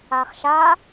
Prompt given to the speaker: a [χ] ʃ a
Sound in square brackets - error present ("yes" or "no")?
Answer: no